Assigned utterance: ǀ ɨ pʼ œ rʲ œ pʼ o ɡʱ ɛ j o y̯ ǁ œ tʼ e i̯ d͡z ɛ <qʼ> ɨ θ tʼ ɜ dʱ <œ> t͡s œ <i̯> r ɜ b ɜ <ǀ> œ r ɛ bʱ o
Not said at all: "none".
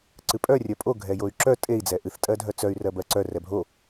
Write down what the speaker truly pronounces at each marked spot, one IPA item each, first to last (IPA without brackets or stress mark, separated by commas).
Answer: ʔ, œ, y̯, ǀ